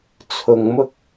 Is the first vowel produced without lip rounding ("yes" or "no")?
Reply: no